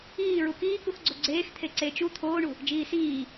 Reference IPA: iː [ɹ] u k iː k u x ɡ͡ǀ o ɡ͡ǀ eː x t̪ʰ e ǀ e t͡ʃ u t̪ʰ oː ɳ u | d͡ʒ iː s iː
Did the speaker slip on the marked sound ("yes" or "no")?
no